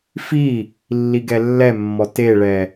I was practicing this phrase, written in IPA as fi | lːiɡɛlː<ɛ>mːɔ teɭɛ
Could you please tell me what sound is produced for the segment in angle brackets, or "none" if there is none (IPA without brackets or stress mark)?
ɛ